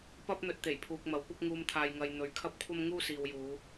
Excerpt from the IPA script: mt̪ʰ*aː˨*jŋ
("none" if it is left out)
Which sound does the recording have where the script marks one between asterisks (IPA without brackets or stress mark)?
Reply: aː˨